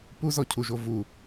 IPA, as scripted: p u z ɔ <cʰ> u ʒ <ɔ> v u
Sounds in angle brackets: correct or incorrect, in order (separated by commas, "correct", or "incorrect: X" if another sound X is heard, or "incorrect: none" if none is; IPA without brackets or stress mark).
correct, incorrect: o